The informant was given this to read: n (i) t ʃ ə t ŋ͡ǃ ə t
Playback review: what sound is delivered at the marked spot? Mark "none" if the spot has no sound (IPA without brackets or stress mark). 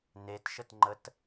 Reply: e